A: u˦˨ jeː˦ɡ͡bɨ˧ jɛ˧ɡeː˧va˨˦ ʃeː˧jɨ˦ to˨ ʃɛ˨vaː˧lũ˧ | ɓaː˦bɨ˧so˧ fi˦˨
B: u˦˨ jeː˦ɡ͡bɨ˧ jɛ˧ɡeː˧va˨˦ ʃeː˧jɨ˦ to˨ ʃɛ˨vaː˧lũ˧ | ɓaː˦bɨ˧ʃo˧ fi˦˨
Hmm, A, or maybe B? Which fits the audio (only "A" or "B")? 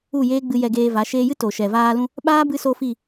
A